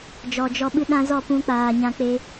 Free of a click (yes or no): yes